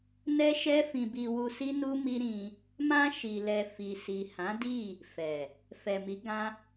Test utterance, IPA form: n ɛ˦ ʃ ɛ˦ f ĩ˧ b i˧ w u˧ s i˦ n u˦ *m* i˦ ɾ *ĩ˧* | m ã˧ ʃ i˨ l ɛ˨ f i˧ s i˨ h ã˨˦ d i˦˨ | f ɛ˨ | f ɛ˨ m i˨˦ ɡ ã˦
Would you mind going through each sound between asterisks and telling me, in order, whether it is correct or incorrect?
correct, correct

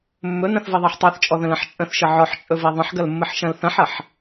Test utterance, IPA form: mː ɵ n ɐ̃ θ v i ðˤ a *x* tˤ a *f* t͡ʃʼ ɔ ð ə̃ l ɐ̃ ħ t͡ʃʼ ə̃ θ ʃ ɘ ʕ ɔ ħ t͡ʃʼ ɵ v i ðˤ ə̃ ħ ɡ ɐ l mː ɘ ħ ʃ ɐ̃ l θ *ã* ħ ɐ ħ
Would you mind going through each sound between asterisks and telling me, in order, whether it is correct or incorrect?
incorrect, incorrect, incorrect

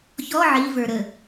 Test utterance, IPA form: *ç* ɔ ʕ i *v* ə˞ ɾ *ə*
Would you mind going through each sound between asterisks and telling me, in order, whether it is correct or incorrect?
correct, correct, correct

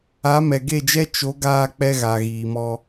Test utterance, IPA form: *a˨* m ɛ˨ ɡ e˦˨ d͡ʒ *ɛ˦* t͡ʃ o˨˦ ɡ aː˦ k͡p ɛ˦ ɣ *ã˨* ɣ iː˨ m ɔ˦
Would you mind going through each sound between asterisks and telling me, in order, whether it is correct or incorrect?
incorrect, correct, incorrect

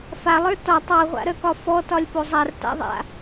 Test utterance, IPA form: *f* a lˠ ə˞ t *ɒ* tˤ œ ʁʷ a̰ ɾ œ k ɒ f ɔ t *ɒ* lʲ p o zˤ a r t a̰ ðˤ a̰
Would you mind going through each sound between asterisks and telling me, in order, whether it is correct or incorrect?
correct, correct, correct

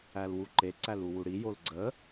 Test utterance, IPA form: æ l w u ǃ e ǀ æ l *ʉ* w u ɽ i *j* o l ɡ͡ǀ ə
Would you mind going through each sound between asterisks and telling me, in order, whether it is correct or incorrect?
incorrect, correct

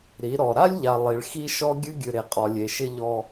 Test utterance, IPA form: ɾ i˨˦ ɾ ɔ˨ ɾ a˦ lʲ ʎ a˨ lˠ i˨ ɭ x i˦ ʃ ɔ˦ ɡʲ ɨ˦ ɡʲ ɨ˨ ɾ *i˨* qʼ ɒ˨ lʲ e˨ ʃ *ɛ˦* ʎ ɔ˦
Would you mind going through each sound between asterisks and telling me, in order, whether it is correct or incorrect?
incorrect, incorrect

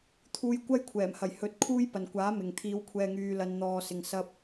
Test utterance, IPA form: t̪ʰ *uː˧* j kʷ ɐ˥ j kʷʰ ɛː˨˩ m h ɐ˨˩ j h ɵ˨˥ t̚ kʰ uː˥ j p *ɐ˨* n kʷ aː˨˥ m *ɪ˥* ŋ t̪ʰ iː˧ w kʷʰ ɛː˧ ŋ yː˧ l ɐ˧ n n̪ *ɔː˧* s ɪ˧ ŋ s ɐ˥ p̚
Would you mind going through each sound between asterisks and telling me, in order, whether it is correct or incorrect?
correct, correct, incorrect, correct

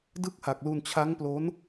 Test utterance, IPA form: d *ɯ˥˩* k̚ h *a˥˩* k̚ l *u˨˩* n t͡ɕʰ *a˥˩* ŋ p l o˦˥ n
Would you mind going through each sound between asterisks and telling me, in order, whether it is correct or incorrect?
correct, incorrect, incorrect, incorrect

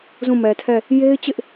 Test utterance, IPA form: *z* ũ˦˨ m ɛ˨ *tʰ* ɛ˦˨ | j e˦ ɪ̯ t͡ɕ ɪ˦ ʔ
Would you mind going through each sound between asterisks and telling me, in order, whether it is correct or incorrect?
correct, correct

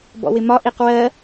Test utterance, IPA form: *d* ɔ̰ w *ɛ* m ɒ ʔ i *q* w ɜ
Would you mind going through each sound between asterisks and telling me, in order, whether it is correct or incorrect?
incorrect, incorrect, correct

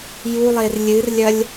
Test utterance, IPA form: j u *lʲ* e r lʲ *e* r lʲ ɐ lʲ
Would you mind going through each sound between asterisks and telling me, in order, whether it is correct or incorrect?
incorrect, incorrect

